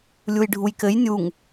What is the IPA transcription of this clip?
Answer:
lʲ u j ɖʱ u j k ɘ j nʲ u ŋ

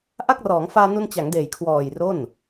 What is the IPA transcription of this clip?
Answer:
ʔ a˥˩ k̚ r ɔː˩˦ ŋ f aː˧ n u˧ n t͡ɕ a˩˦ ŋ d eː˩˦ j kʰ w ɔː˨˩ j r o˥˩ n

